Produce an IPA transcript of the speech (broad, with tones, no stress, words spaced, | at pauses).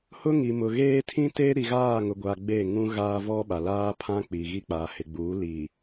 hʊ˦ŋi˨mʊ˨ɣeː˦ tʰĩ˦te˦ɾi˨ ɣaː˦˨ŋʊ˨ ɡʷa˨ ɡ͡be˦˨ ŋũ˦ɣaː˦ vɔ˦ ɓa˨laː˦pʰã˦ k͡pi˨ɣi˦ k͡pa˨hɪ˨ɡ͡buː˨˦ li˨